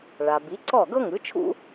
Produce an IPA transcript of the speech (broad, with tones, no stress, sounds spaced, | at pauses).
ɭ a˩ b i˩˥ ǀ ɔ˥˩ ɡ ɤ˥ ŋ ɯ˩˥ t͡ʃʰ ṵ˥